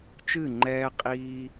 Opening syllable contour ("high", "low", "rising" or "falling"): falling